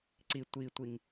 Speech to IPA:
ǀi tʷitʷiŋ

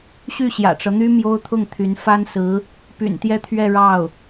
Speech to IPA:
ɕy˥˩ɕjä̰˨˩ʈ͡ʂɤ˦n̪y˥ mjo˥ʊ̯t̪ʰʊ˥˩ŋ t̪ʰy˧˥n fa˥nsɹ̩˧˥ | py̰˨˩nt̪jɛ˥˧t̪ʰɥɛ˥˧ ɻɑ˥˩ʊ̯

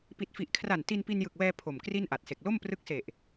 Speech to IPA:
pi˨˩t̚fi˨˩ʔkʰra˨˩n ti˧npi˧njɯ˨˩k̚wɛː˧ pʰo˨˩mkri˥˩nʔa˨˩t̚se˨˩k̚ lo˥˩mprɯ˦˥k̚se˨˩ʔ

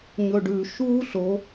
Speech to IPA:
ɲɵɖʉ ʃuːɬo

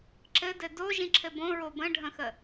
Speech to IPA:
ǁɘdɘ doʒĩǁʰɘ bõɹo bə̃ɖʱə̃xə

